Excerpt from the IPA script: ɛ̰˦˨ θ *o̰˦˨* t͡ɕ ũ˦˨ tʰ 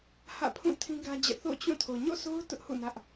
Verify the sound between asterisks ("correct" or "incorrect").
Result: correct